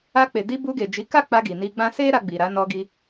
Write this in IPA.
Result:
a˧ k͡p e˨ d i˧ b u˧ ɡ e˨ d͡ʒ i˨˦ k a˦˨ k͡p a˧ ɡ i˨ n i˧ ɡ͡b ã˦ s e˦ ɾ a˧ ɡ͡b i˨ ɾ a˨˦ n ɔ˧ ɡ i˧

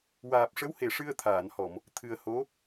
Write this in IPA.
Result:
w aː˨˩ p̚ ʂ ə˧˥ w h e˨˩˨ ʂ ɨ˧ ə̯ t̪ʰ aː˨˩˨ n h ɔ˨˩˨ m | t̪ʰ ɨ˨˩ ə̯ h o˧˥

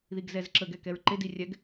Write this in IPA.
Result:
ð i ɡ z ɛ z ǁ ə ɡ ɛ k ɛ ɹ ǃ e d i rʲ ɛ ɡ

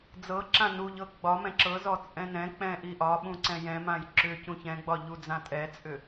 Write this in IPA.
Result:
d͡z ɤ ǁ ã n u ʎ ɤ ɡ͡b ɒ m ɛ̃ ǁ ɤ z ɔ t͡sʼ ɛ̃ n ɛ̃ k͡p ɛ̃ ʔ i ʔ ɒ ɓ ũ ǀ ɛ̃ j ɛ̃ m ã j ǁ ʏ c ũ ç ɛ̃ ɡ͡b ɒ ʎ u d͡z ã tʼ ɛ t͡sʼ ʏ

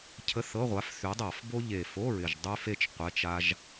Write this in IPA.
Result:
cʰ ə˧˥˧ θ ɤ˧˥˧ ʁʷ a˨˥ f θ y˨˥ dˤ a˧˩˧ f b o˥ ʎ e˨˩ f o˧˥˧ ɹ ɪ˨˩ ʒ dˤ y˥ f e˥ t͡ʃ qʷ ɛ˧˥˧ t͡ʃ a˥ ʒ

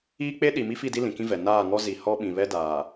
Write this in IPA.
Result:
iː˦ k͡p e˦ ɗ i˨ m i˦ f i˦˨ d i˦ l ĩ˨ k ĩ˦ v ɛ˨ n aː˦˨ ŋ ɔ˦ z i˨ h ɔ˦ ɓ ĩ˨ β ɛ˦ d aː˨

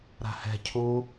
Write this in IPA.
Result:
ɾ a̤ h ɛ̤ cʰ u

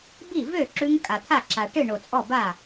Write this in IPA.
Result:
b i˥˩ v ø˥˩ ǁ ʉ˦˥ ŋ kʼ a˨˩ t̪ʰ a˥˩ ǁ a˨˩ ʈ ɨ˥˩ ɳ o˨˩ t͡sʼ ɔ˥˩ b a˥˩

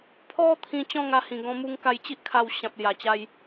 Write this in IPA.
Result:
pʰ ɔ˦ t̪ʰ ĩ˧ t͡ɕ ɔ̃˥˧ ŋ a˧ h ĩ˨˩ ɡ ɔ̃˧ m u˧ ŋ k a˧ j t͡ɕ i˦ ʔ kʰ a˧ w ɕ ã˨ p̚ l j a˨˩ t͡ɕ a˧ j

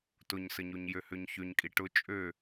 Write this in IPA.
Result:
t ʊ ɲ s ə ɲ o ɲ j ø h ø ɲ ç ø ɲ kʼ i ʈ ʊ t͡ʃʼ ø

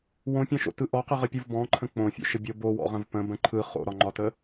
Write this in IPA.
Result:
w õ pʲ ɔ̃ ʃ o̰ t ɯ ʔ ɔ q ɯ ʁ ə pʲ ɯ v b ɔ̃ ǃʰ ə̃ k͡p õ fʲ o̰ ʃ ə bʲ o b o w ɔ̰ ʁ ə̃ v p ə̃ b ə̃ ǃʰ ɯ χ o̰ ɾ ɒ ŋ͡ǃ ɒ t ə

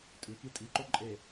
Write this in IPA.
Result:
tʼ ʉ k i tʼ i ǃ o ǃʼ e

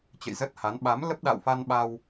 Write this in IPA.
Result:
t͡ɕ ə̰˧˨ j z ə˦˥ t̚ h a˨˦ n ɓ a˨˦ m l ə˦˥ p̚ ɗ a̰˧˨ w f a˧ n ɓ a˧ w

